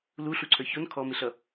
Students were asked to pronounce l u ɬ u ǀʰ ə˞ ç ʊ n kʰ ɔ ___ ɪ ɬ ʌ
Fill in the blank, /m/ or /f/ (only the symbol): m